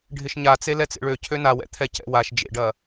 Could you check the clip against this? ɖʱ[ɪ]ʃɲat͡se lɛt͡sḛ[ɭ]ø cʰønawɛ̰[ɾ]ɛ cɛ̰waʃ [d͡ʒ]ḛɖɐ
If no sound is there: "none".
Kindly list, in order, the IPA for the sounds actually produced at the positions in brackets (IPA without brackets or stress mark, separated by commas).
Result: ɪ, ɭ, t̪ʰ, d͡ʒ